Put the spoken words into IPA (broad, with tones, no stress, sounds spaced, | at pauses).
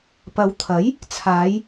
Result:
p ɐ˨˧ w t̪ʰ ɐ˨˥ j | t͡sʰ aː˨˧ j